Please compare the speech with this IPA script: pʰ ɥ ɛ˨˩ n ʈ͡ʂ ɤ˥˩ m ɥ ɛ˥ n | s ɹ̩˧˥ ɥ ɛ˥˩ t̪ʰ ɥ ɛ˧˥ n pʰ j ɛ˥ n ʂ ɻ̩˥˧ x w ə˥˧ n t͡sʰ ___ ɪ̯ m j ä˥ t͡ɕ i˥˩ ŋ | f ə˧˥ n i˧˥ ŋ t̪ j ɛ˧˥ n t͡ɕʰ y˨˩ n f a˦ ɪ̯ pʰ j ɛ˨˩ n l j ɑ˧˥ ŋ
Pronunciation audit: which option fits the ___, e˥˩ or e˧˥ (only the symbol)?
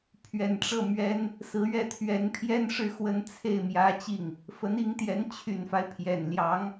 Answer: e˥˩